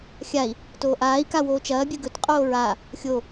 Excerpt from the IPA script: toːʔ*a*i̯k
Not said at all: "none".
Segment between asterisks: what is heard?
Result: aː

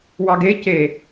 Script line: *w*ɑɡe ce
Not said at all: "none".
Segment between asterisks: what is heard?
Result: w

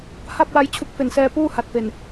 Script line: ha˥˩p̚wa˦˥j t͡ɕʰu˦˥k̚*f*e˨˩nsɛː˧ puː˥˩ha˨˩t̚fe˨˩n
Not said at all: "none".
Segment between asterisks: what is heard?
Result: f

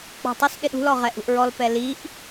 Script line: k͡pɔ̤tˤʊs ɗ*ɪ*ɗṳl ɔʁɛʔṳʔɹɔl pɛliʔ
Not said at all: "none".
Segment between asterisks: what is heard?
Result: ɪ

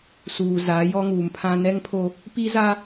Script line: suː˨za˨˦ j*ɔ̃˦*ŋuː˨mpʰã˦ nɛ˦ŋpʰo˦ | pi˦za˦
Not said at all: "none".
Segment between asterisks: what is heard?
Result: ɔ˦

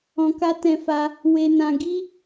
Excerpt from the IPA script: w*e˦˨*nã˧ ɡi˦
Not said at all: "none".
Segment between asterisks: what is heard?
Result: e˧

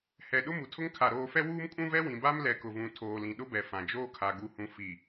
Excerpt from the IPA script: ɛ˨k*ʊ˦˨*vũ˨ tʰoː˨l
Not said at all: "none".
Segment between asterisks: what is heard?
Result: ʊ˨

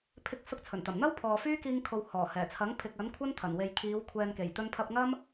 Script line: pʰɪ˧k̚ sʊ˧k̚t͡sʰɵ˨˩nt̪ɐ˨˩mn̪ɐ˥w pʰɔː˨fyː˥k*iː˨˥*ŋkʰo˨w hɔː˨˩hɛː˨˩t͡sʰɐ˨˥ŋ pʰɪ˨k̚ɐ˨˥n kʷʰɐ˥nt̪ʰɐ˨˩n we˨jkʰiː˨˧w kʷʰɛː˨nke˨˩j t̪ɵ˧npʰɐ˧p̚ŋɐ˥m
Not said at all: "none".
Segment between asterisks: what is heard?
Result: iː˧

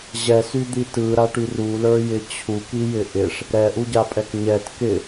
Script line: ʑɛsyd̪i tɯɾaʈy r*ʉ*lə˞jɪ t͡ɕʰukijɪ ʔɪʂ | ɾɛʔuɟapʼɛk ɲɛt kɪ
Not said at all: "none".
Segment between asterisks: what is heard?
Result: u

